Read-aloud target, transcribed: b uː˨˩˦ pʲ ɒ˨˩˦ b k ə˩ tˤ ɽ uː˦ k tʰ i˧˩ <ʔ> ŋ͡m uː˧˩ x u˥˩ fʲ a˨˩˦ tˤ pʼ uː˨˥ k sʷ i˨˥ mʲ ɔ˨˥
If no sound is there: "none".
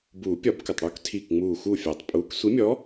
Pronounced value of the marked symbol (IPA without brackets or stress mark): k